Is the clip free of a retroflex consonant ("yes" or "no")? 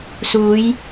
yes